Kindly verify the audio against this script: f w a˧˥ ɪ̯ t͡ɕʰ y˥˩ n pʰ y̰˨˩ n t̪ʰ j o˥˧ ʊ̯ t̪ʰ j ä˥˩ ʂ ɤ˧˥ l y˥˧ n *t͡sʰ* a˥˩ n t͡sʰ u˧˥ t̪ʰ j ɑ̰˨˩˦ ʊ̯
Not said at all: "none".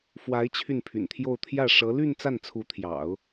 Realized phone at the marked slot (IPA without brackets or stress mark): t͡s